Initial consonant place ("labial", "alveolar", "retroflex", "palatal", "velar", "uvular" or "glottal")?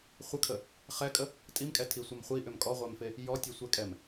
uvular